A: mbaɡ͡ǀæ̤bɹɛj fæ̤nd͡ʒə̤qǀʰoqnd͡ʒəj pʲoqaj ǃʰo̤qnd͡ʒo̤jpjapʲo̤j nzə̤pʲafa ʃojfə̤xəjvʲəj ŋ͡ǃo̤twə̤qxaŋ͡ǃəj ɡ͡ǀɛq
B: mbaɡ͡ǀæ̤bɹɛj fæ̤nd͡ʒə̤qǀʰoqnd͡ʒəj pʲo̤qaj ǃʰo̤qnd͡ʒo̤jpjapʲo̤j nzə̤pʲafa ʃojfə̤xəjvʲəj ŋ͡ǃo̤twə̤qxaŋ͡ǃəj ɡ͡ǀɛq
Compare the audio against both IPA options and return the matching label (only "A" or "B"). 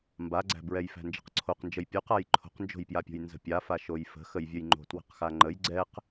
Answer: A